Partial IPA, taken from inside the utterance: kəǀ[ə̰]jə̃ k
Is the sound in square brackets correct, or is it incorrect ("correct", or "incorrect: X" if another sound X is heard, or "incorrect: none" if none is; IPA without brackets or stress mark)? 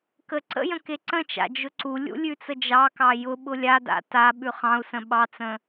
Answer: correct